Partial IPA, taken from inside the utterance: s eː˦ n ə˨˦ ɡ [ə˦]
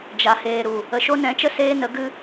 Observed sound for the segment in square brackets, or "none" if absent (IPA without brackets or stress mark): ɨ˦